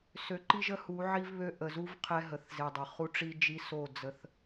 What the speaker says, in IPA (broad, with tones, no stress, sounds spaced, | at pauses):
s ø˨ ǃ i˦ ʒ ə˦ h u˨˦ ʕ i˦ v β ø˦ ʔ ə˨ z u˦ v qʰ ɛ˦ ɦ ə˨ θ z e˨ dˤ ə˨ χ u˦ ʈ͡ʂ i˦ d͡ʒ i˦ s o˦˨ d͡z ə˦ θ